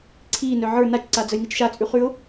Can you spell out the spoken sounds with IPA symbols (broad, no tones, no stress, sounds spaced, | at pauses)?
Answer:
ǀʰ iː n œ ʕ ə˞ n a t͡ʃ ǀ a d͡z ə j n i t͡ʃ ʃ a t͡sʼ ʉ χ ʉ ʊ̯